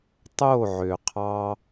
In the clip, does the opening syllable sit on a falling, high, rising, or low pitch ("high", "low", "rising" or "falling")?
falling